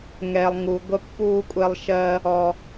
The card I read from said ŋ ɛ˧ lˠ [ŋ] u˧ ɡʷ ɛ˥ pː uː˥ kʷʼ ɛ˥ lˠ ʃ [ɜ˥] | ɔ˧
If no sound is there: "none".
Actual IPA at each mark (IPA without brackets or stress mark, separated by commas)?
ŋ, ɜ˥